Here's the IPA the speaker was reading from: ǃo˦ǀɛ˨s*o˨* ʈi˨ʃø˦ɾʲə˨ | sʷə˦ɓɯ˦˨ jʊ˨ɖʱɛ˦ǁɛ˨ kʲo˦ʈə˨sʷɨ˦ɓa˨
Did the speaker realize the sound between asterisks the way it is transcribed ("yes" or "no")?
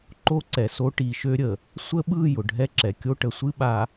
no